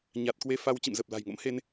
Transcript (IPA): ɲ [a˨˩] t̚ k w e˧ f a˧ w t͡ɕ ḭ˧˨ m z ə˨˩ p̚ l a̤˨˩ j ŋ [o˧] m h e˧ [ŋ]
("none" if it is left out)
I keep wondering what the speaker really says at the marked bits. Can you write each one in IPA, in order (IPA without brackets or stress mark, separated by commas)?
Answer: a˨˩, o̰˧˥, n